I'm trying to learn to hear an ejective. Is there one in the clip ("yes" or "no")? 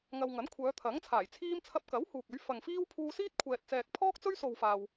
no